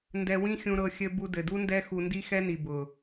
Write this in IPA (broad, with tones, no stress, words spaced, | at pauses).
ndɛ˧wĩ˦xʲũ˧ɾɤ˧ xʲɘ˧ bu˧dɘ˨du˦ndɛ˦ xu˧ndi˦xɛ˦ni˨ bʊ˨